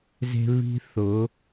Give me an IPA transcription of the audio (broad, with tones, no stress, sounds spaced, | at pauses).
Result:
z e̤˦ β i̤˦ θ ʊ˨˦